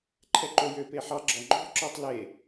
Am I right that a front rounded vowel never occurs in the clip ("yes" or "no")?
no